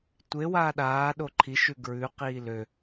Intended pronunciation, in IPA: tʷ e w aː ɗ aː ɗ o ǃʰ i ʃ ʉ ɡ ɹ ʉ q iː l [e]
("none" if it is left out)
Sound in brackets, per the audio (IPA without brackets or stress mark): ø